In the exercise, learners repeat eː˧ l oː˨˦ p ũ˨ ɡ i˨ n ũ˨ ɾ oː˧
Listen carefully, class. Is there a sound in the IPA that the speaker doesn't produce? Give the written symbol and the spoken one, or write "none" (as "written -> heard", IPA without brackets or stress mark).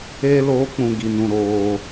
p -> k͡p